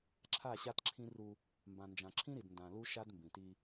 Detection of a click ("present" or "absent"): present